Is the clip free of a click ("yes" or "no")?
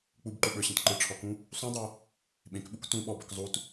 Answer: no